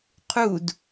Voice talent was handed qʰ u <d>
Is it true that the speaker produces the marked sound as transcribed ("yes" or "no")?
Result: yes